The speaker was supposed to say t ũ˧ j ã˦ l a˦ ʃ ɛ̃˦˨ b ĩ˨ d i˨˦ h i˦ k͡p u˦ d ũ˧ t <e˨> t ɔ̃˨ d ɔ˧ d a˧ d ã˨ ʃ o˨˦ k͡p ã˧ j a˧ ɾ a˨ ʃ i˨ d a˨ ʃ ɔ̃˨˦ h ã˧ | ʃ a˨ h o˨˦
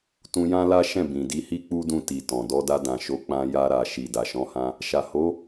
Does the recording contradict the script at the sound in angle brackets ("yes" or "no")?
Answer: yes